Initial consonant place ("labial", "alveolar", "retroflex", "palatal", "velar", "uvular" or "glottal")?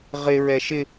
uvular